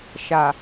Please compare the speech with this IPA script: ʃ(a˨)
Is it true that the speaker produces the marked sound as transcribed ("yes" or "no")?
yes